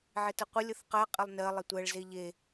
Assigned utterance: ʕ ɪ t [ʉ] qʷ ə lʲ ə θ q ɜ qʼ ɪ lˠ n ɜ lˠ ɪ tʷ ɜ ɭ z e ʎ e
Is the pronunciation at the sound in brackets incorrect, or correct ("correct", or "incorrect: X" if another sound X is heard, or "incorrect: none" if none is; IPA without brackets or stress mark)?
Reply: incorrect: ə